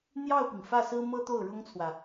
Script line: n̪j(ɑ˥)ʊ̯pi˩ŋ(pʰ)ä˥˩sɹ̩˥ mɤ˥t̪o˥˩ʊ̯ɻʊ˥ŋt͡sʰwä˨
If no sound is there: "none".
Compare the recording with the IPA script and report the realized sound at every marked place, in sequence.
ɑ˥˩, f

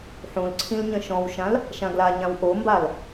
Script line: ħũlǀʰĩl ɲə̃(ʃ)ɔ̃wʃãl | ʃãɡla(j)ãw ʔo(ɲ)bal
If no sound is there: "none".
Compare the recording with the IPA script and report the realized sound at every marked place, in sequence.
ʃ, ɲ, m

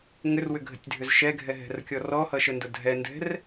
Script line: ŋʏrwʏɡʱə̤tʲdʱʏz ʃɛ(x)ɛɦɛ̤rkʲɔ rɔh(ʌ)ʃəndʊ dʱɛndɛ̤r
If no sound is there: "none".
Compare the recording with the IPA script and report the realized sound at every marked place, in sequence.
ɡʱ, ʌ

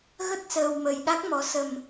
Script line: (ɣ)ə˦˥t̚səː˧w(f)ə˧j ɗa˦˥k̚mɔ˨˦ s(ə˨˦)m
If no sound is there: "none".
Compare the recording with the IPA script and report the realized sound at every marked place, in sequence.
ɣ, m, ə˧

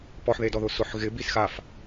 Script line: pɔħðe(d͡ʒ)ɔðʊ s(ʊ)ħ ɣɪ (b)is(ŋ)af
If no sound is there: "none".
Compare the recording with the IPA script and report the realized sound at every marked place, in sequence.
d, ʊ, b, x

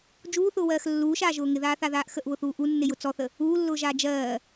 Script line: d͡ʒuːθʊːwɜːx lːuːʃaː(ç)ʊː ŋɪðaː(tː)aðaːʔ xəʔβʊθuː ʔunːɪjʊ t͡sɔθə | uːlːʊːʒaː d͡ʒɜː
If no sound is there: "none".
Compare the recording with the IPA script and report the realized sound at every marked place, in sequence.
ʒ, θ

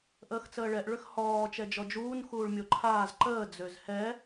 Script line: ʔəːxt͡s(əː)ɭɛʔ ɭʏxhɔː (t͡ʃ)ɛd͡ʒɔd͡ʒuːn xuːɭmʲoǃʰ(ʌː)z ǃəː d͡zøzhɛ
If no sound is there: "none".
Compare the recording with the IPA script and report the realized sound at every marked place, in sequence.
əː, t͡ʃ, aː

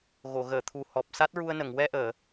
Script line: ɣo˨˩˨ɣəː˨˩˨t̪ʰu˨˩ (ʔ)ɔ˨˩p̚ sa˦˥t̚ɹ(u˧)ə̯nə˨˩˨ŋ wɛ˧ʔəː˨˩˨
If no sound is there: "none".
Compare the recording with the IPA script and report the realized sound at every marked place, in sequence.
h, u˧

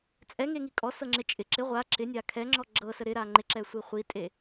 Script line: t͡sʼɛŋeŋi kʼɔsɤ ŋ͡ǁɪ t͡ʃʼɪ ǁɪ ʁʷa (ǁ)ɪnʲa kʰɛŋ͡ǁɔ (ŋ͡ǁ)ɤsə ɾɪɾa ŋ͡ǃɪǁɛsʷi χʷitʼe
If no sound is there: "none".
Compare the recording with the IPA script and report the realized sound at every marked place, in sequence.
ǁ, ɡ͡ǁ

